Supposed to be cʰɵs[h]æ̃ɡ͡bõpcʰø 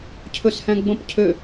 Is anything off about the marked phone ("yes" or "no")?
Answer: no